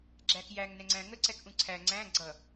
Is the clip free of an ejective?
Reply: yes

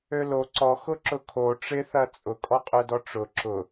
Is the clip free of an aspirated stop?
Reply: no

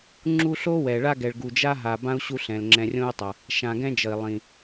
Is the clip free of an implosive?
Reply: yes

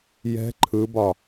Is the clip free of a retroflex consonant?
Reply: yes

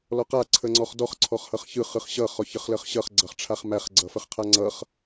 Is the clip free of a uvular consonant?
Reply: no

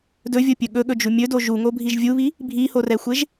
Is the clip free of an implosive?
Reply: no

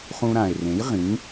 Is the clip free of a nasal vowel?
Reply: no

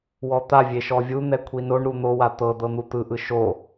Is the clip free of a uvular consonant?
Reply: yes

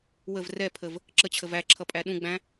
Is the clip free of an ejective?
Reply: no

